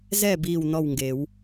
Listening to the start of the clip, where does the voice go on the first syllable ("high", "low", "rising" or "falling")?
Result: falling